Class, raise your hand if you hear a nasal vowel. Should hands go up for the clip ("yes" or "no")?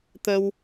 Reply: no